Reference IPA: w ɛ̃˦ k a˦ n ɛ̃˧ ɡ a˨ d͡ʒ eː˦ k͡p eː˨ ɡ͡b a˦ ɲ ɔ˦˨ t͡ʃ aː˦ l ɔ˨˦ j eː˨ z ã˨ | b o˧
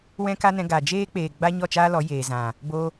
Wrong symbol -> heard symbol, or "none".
none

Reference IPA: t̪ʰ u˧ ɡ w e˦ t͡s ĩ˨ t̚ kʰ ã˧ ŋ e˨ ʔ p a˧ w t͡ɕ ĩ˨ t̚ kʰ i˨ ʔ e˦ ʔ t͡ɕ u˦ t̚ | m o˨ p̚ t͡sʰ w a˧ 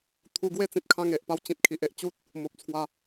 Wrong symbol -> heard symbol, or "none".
none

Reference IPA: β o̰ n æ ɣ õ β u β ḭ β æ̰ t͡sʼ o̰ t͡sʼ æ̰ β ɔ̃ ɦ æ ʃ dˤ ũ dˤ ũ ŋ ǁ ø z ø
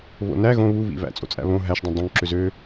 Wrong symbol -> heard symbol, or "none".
ɔ̃ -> õ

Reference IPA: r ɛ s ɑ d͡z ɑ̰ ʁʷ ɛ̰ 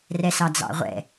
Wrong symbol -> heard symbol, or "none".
none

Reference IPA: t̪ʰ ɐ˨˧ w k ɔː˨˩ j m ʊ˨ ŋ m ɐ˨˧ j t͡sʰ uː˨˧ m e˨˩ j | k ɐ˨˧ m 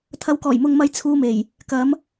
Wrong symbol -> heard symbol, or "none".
none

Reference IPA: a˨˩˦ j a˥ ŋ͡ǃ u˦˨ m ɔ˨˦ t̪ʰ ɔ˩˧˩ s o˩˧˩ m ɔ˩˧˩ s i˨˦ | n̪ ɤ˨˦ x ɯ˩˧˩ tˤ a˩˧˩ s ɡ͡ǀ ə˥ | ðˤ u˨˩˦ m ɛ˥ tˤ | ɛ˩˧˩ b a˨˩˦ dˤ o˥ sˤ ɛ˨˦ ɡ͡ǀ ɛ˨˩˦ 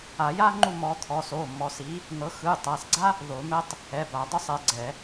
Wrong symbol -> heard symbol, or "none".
ə˥ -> a˥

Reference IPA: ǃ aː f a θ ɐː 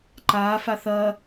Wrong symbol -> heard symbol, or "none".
none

